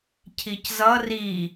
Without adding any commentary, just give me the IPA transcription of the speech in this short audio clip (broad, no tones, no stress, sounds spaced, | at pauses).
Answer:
cʰ i c z ʌ r i